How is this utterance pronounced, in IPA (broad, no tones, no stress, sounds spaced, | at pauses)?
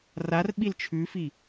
r a r ɓ i l t͡ʃʰ ʉ f i